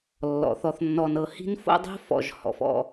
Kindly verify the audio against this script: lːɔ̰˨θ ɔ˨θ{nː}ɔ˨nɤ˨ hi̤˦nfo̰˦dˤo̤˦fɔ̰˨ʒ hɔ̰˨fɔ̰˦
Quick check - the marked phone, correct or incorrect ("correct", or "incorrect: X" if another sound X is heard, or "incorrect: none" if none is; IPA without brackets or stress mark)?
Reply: correct